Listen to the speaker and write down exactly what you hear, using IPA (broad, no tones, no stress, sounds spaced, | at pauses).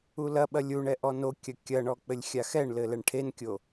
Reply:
u l ɐ ɓ ɐ lʲ u ɳ ɛ ʔ ɔ n o kʲ ɐ kʲ ɐ ɳ ɔ k͡p ɘ lʲ xʲ a x ɛ ɳ l ɘ l ɛ ɳ ʈʰ e n kʲ o